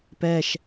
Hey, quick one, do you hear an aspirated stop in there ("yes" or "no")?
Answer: no